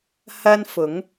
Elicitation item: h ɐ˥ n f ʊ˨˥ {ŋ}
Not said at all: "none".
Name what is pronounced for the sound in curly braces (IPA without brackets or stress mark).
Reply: ŋ